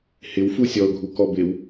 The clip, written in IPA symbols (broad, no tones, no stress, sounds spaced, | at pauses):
h ɪ w f u sʲ ɔ ʊ̯ ɡʱ u k ɔ b ɪ w